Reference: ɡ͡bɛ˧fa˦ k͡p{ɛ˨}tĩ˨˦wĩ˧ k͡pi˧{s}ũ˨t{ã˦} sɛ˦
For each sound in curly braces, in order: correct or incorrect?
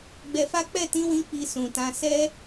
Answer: incorrect, correct, incorrect

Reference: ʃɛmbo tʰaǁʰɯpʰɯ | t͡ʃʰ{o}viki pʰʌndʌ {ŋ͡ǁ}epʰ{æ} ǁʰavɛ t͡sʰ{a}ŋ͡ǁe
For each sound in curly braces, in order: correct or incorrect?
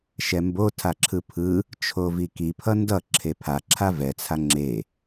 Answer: correct, incorrect, incorrect, correct

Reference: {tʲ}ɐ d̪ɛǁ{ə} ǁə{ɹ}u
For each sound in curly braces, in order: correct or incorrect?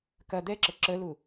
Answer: incorrect, correct, incorrect

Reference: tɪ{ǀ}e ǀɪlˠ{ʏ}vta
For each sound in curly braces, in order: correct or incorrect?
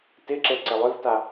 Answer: incorrect, correct

